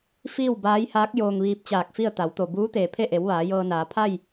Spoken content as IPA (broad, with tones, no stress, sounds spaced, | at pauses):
f iː˥˨ w b aː˧˥ j h aː˧˥ k̚ j oː˧ ŋ ʋ iː˧ p̚ t͡ɕ aː˧˩ k̚ f i˥˨ ə̯ t̪ a˩˧ w t̪ o˩ b uː˧˥ t̪ eː˩ pʰ e˥˨ ʔ e˩˧ w ʋ aː˩˧ j ɤː˧ n aː˩˧ pʰ a˥˨ j